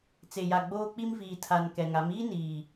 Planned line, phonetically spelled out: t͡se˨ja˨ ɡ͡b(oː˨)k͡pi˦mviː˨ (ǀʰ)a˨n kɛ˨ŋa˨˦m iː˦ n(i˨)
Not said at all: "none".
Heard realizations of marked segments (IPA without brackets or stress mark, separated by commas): oː˦, tʰ, iː˨